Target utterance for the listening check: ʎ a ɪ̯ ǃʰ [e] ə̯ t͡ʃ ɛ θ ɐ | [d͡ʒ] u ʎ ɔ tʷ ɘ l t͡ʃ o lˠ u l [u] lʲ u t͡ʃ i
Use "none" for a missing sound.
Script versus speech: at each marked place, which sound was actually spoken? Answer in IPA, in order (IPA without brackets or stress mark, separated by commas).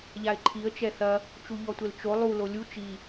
i, t͡ʃ, o